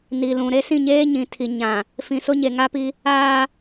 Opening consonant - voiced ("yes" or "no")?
yes